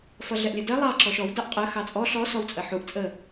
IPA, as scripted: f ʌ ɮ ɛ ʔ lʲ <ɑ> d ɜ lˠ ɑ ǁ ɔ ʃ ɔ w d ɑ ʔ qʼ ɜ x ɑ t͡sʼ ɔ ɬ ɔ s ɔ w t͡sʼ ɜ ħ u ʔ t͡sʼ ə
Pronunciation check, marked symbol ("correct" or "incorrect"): incorrect